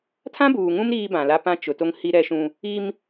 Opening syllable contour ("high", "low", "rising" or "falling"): high